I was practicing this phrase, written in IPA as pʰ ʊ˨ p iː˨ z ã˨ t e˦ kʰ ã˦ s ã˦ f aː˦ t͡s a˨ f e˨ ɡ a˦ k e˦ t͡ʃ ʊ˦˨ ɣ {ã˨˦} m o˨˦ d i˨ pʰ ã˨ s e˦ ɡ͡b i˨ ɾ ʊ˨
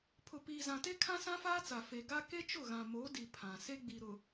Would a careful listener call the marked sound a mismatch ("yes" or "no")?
yes